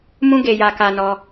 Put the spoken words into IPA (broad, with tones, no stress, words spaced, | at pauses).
mũ˦ ɡe˧ja˧ka˧nɔ˧